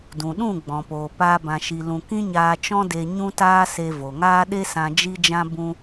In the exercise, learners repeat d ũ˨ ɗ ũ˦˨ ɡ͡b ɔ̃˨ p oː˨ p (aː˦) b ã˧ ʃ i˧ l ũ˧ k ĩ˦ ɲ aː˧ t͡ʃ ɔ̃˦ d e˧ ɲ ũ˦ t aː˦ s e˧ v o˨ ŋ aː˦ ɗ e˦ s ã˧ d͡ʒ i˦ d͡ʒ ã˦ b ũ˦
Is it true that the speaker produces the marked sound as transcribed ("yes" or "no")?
yes